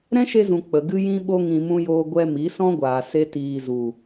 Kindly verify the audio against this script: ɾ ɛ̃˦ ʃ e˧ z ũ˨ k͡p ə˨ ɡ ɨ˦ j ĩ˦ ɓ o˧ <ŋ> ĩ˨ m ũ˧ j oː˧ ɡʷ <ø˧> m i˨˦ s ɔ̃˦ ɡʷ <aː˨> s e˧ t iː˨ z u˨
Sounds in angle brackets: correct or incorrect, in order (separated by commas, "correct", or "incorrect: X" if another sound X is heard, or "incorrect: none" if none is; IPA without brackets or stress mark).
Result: correct, incorrect: ɛ˧, correct